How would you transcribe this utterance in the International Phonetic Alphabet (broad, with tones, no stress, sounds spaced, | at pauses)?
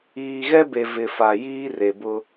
iː˨ ɣ ɛ˦ b e˨ v ɪ˨ f a˨ j iː˦ r e˨ b ʊ˦